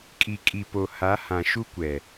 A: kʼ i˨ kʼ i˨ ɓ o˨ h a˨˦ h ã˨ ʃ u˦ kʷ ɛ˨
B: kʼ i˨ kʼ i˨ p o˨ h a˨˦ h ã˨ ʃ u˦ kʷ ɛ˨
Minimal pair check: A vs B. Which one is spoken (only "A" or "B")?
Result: B